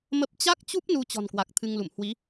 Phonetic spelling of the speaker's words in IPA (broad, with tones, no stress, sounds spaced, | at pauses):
m ə˦˥ p̚ t͡ɕ a˦˥ k̚ t͡ɕ u˦˥ p̚ n u˧ t͡ɕ ɔ̤˨˩ n k w a˨˩ k̚ t̪ʰ ɨ˧ ŋ l ṵ˧˨ m h w i˨˦